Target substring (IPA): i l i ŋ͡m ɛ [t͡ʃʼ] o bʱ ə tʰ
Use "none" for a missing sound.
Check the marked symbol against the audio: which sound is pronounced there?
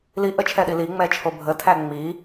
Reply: t͡ʃʰ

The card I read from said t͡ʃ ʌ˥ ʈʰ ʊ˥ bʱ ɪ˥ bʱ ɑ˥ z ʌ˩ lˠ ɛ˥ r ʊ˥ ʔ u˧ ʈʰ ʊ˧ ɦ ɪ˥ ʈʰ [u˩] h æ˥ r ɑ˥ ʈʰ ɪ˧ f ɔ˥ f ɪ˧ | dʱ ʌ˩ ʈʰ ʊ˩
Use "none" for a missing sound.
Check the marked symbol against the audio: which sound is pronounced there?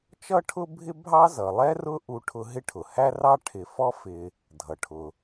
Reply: ʊ˩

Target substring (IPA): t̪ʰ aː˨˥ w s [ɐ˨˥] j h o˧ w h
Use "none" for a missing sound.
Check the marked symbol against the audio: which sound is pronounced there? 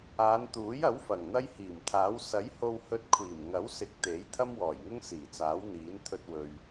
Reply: ɐ˨˥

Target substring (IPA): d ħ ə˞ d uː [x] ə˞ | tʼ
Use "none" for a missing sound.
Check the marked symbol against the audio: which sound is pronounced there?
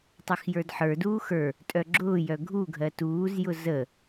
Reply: x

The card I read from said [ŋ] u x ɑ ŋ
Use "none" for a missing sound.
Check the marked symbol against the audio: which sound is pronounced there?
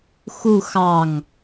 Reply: x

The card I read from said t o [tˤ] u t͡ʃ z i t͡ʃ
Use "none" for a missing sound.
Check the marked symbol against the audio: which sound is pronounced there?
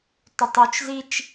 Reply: tˤ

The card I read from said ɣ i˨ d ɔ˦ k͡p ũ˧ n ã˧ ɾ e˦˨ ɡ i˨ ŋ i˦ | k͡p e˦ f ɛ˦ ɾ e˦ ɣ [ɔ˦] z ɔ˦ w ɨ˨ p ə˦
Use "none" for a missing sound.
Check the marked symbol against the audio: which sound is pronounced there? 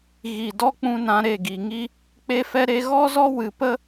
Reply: ɔ˦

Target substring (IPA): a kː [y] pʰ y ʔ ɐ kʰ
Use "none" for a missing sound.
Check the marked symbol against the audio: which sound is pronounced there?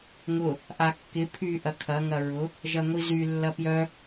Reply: ɪ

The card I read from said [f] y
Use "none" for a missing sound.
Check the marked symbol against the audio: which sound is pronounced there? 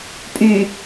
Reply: pʼ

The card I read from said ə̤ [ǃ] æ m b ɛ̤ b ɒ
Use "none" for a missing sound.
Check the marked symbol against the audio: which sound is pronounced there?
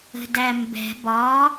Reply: d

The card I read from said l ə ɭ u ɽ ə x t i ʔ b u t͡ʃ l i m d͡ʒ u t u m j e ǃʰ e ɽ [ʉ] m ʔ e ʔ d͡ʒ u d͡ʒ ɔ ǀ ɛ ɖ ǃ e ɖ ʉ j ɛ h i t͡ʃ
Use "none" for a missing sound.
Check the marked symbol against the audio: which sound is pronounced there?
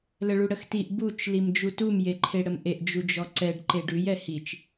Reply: ə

